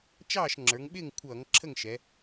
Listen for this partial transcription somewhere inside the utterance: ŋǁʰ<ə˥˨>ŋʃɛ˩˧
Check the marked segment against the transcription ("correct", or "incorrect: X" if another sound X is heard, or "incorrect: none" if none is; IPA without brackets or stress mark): correct